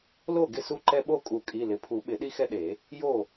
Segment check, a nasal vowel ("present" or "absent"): absent